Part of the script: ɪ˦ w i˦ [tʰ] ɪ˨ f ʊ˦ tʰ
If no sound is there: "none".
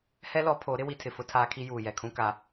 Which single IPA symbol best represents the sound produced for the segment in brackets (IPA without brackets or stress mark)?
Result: tʰ